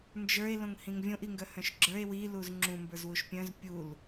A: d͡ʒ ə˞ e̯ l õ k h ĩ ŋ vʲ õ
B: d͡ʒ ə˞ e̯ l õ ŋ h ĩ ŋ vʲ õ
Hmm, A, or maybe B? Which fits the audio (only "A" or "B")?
B